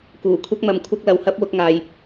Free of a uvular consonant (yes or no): yes